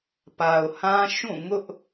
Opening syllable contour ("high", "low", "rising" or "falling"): low